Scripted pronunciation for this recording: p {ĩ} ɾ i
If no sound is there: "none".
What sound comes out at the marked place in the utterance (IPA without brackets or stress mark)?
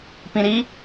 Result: ĩ